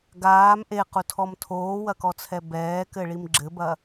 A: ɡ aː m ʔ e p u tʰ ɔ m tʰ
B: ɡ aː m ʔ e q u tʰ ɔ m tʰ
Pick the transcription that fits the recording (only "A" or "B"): B